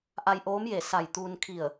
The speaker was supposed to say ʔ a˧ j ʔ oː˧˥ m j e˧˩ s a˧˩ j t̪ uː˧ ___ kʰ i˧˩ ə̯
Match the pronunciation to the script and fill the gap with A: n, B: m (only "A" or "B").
A